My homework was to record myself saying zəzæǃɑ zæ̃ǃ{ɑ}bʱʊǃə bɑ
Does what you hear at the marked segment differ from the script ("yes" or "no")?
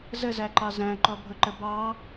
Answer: yes